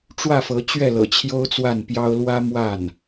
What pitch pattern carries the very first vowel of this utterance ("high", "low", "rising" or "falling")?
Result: falling